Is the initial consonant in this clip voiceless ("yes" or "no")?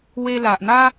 no